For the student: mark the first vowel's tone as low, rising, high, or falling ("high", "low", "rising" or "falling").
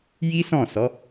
high